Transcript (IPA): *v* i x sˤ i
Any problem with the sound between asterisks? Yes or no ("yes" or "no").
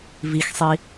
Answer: no